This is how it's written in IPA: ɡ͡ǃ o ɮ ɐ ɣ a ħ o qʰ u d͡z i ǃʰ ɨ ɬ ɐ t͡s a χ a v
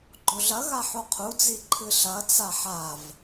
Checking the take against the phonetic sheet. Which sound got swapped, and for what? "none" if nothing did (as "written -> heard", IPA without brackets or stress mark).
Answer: χ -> ħ